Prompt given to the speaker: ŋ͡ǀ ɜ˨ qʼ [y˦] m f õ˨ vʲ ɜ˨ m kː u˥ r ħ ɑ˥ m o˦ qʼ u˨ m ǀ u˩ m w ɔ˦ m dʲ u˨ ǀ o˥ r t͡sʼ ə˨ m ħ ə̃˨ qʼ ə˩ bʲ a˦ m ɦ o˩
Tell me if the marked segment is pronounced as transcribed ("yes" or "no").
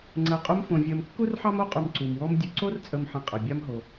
no